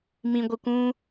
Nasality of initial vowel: nasal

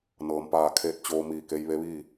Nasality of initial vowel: oral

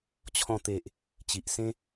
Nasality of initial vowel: nasal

